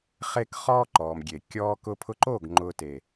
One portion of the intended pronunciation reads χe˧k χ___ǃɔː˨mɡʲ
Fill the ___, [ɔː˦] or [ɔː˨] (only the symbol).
ɔː˦